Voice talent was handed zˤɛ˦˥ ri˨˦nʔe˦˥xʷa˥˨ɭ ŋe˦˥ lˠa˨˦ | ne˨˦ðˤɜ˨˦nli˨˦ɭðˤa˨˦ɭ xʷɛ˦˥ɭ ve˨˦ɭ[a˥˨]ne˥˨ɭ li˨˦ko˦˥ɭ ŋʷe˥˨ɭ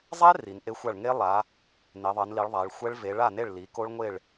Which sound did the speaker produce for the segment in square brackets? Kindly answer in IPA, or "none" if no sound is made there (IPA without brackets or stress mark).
a˥˨